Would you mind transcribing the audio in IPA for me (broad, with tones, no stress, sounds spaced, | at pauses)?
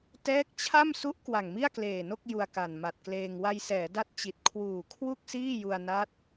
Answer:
t ɛː˦˥ k̚ t͡ɕʰ a˥˩ m s u˦˥ ʔ k w a˨˩ ŋ m i˥˩ a̯ k l eː˨˩ n o˥˩ k̚ j u˧ a̯ k a˨˩ n m a˨˩ t̚ k l eː˧ ŋ w a˧ j s ɛː˩˦ d a˥˩ t̚ t͡ɕ i˨˩ t̚ kʰ w uː˨˩ kʰ w u˥˩ k̚ s iː˥˩ j u˧ a̯ n a˦˥ t̚